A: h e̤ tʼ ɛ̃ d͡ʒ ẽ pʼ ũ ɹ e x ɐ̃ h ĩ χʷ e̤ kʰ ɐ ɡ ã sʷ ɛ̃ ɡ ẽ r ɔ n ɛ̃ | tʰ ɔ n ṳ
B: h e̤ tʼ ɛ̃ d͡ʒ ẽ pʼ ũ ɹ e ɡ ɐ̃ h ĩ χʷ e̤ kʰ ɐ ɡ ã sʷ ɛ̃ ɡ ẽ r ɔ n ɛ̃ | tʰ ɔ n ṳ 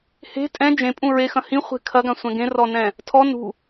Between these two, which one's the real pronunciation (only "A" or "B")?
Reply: A